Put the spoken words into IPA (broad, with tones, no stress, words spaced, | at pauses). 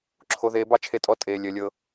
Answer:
ǁʰo˧ðeː˧bɑ˦ t͡ʃʰe˧tʼɔ˧ tʼeː˧ lʲəː˧lʲɤ˦